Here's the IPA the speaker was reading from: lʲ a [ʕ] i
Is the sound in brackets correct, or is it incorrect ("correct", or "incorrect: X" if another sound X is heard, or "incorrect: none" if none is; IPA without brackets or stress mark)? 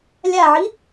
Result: correct